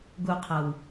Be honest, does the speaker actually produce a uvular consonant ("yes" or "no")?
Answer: yes